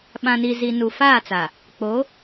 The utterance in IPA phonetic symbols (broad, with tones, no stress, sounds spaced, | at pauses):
ɓ ã˨ n i˨ z i˨ n u˨ f aː˦˨ t͡s a˨ | k͡p o˨˦